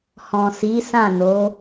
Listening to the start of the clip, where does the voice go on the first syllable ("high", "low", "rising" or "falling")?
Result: low